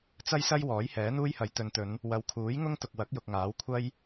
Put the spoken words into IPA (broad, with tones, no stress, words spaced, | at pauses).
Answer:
t͡sɐ˥jsɐ˥j wɔː˨˥jhɛː˨˥n̪uː˥jhɐ˨˧j t̪ɵ˨nt̪ɵ˨˧n | wɐ˨˧wkʰuː˨˥j ŋʊ˥ŋ t̪ʊ˨k̚wɐ˨˥k̚ jʊ˨k̚ŋaː˨˥w kʷʰɐ˥j